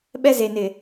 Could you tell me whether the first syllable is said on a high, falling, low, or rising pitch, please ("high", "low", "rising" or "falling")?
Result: high